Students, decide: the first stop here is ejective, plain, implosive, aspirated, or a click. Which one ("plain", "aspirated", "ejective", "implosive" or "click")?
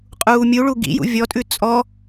ejective